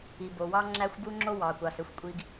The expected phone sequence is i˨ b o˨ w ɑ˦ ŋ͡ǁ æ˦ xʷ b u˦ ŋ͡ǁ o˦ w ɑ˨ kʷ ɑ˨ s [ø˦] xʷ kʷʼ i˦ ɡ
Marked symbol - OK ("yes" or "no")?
yes